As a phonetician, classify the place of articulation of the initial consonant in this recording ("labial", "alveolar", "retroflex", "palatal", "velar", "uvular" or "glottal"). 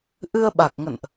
glottal